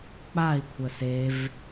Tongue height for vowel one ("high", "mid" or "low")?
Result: low